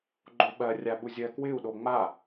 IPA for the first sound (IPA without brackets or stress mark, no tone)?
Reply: ɡ͡ǃ